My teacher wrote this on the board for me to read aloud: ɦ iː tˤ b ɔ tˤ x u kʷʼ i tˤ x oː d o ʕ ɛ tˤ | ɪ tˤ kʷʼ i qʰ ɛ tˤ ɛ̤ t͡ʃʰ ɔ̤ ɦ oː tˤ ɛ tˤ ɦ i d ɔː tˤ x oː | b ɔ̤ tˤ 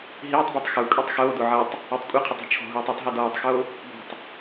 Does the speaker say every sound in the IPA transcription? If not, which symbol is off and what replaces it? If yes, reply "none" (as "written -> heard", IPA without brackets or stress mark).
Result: none